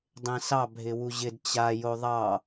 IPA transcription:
dˤ ẽ s ɑ bʱ ɪ w u ʑ ɪ d t͡ɕ a j o ðˤ ɑ

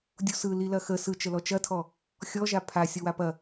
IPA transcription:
dʲ u s ɯ l i l ɐ x ə s ɯ t͡ʃ ə l ɔ t͡ʃ ɐ tʰ ɔ | xʲ ɔ ʒ a pʰ a sʲ ɔ w a p ɐ

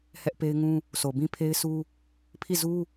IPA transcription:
h ɛ˦ ʔ p e˦ ɪ̯ ŋ ũ˦ | s o˨ b ĩ˦ pʰ e˦ ɪ̯ s u˦ | pʰ i˦˨ z u˦

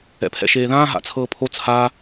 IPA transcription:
ɛ̰ pʰ ɛ̰ ʃ eː ð ãː ɦ a̰ t͡sʰ ɤː pʰ o t͡sʰ a

